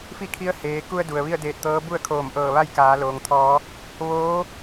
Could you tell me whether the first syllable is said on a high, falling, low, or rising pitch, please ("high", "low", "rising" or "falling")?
falling